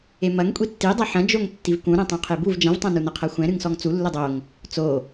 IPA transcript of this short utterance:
e m ɐ ŋ kʷʼ i tː i dˤ ɐ ħ ɐ̃ d͡ʒ o ŋ tː i v k ũ ɾ ɛ̃ tˤ ũ qʰ e b u v d͡ʒ ɐ̃ v tˤ ɐ̃ n u n ɐ qʰ ɐ xʷ ɛ̃ ɾ ɨ ŋ s ɔ ŋ t͡s u lː ɘ dˤ o ŋ | t͡s o

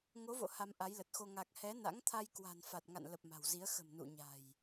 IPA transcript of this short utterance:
ŋ o˨˦ v o̰˧˨ h a˧ m ʔ a˨˦ j l ə˨˩ t̚ x o˧ ŋ a˨˩ k̚ h ɛ˨˦ n a̰˧˥ ŋ t̪ʰ a˧ j k w a̤˨˩ n f a˨˩ t̚ ŋ a̰˧˨ n l ə˨˩ p̚ m a̤˨˩ w z i˨˦ ə̯ x ə̤˨˩ m n ṵ˧˨ ɲ a̤˨˩ j

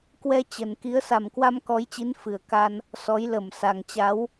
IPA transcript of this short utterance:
k w ɛ˧ t͡ɕ ə˨˩ n k i˨˦ ə̯ s a˨˩ m k w a˧ m k ɔ˨˦ j t͡ɕ i˨˦ n f ɨ˨˩ ə̯ k a˧ n | s ɔ˨˦ j l ə˧˩ m s a˨˩ ŋ t͡ɕ a˨˦ w

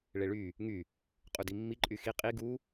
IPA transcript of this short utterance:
ɭ e ɭ y | ŋ y | qʼ u d i mː i ǃʼ y x i qʼ i ɡ u

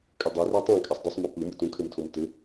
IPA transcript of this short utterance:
kʼ ɘ dˤ e r ɛ tˤ ã kʼ a sˤ d ɯ sˤ m ɔ p ɯ m ɯ t ũ kʰ ɘ m tʰ o m t ɘ

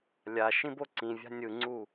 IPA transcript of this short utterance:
lʲ a ʃ ĩ b o ǀ ĩ vʲ a̤ nʲ ɯ ŋ͡ǀ u

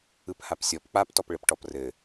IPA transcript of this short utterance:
ɯ p h a p sʲ ɔ p k͡p a p t ɔ p ɭ ɘ p ʈ ɔ p r ɘ

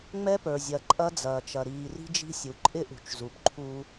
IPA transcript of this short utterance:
ŋ͡m ɛ˦ p ə˞˨ zʲ ɐ˨ ǃʼ ɐ˦ d͡z ɐː˨ t͡ʃ ɐ˨ ɾ iː˨ r i̤˦ d͡ʒ i̤˦ sʲ u˨ ǃʼ ɪ˦ ʔ ṳ˨ t͡ʃ z u˨ p ǃʰ u˦

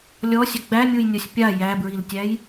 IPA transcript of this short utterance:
lʲ ɔ sʲ ə ɡ͡b æ mʲ u j nʲ ɔ sʲ pʲ a j æ b ɹ i l tʲ æ j

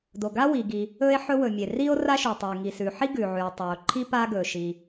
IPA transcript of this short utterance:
d o˩ ɡ a˥ w i˩ ɡ i˩ | ɵ˥ e̯ ħ ɵ˥ w ɵ˩ mʲ e˩ r i˥ o̯ r a˥ ʃ ʉ˩ tˤ e˩ ŋ i˩ s ʉ˩ ħ i˥ ɡ ʉ˩ ʕ ʉ˩ e̯ tˤ ɵ˩ o̯ ǃʰ i˥ p a˥ ɡ ɵ˩ ʃ i˩

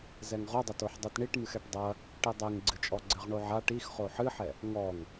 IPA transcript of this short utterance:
z ɛ ŋ ʁ o dˤ ɐ t o ħ dˤ i t ɳ i ʈ m ɨ x ɛ ʈ dˤ ɐ | ʈ i dˤ e ŋ ɡ͡ǀ ɨ t͡ʃʼ ɔ ɡ͡ǀ ɘ ʁ ɳ o ʕ a ʈ i x χ o ħ ɨ ħ ɛ | ŋ ɔ ŋ

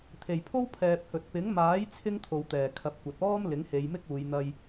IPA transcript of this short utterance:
t̪ʰ e˨˩ j pʰ o˥ w pʰ ɛː˨ p̚ h ɵ˨ t̚ p ɪ˨˥ ŋ m aː˨˥ j t͡sʰ ɪ˥ ŋ t̪ʰ o˨ w t̪ ɛː˨˩ kʰ ɐ˨˥ p̚ kʷ ɐ˨ t̚ ɔː˥ m l ɪ˨˥ ŋ h e˨˧ j m ɪ˥ k̚ uː˨˧ j n̪ ɐ˧ j

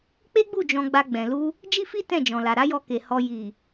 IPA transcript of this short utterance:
k͡p e˦ ɡ͡b u˦˨ d͡ʒ ɔ̃˧ ɡ͡b a˧ ɡ͡b ɛ̃˨ l u˧ | d͡ʒ i˦ f i˦ t ɛ̃˦˨ d͡ʒ ɔ̃˨ l a˨ ɾ a˨˦ j ɔ˧ k e˨ h ɔ˨ j i˨

